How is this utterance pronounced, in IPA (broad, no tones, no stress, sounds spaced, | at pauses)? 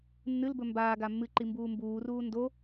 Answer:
nː ɨ l b ɵ m b aː ɡ a mː ɨ ǃ i m b uː m b uː r uː n d o